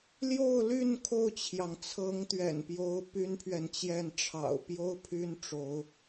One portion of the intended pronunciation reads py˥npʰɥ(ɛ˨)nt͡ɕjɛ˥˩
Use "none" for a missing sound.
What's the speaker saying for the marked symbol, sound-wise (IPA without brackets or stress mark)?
ɛ˨